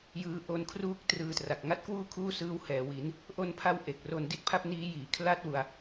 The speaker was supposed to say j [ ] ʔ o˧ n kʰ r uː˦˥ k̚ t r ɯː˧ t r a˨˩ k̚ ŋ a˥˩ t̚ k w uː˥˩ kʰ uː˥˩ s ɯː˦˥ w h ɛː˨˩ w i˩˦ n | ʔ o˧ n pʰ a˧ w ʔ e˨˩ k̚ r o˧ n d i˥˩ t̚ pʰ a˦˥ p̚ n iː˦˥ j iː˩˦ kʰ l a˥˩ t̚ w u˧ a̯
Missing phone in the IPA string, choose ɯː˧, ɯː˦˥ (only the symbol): ɯː˧